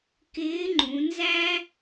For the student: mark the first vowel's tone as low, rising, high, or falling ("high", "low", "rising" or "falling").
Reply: rising